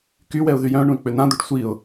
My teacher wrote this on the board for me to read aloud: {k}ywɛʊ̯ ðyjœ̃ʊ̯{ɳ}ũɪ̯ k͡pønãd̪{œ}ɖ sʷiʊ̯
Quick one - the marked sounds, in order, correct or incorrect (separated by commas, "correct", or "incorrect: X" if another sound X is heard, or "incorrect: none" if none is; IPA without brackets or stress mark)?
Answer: correct, correct, correct